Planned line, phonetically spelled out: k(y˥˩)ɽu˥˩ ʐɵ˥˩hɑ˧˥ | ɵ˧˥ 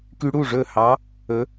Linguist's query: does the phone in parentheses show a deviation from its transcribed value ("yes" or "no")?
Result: yes